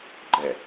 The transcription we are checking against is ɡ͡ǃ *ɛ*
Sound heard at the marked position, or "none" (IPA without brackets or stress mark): ɛ